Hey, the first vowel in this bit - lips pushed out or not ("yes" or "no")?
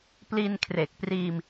no